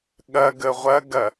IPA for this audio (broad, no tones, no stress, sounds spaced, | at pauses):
ɠ ɐ ɡ ə ʁʷ ɐ ɡ ɐ